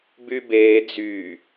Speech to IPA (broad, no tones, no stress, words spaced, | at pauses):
bybeː d͡zy